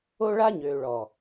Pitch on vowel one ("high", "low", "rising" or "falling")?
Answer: high